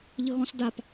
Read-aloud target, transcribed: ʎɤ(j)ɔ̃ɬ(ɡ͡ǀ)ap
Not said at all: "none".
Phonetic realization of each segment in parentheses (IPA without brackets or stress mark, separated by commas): ɣ, d